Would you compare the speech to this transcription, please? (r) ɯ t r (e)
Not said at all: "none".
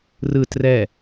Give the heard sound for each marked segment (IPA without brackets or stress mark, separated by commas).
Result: r, ɛ